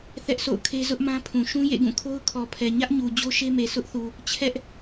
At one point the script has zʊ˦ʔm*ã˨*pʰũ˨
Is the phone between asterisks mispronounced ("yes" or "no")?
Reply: yes